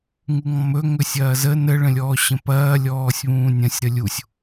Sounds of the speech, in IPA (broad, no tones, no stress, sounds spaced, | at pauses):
ŋ u ŋ ɔ̃ m ɵ ŋ ɵ sʲ ɐː z ə n ə ɭ ə̃ lʲ ɔː ɕ ə̃ p ɐː lʲ ɔː sʲ β ũː nʲ ɐ̃ sʲ ɾ ə lʲ u sʲ